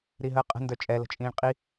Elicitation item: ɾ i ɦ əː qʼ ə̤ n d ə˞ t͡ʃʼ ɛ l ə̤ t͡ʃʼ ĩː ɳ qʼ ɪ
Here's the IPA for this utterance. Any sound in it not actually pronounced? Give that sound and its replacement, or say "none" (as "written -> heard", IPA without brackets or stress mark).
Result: ɪ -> i